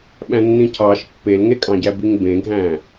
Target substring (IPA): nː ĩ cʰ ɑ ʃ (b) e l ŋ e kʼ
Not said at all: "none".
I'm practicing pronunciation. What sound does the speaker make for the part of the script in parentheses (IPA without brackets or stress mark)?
pː